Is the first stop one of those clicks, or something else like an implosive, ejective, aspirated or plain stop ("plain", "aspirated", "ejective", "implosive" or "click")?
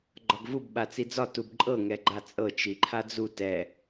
click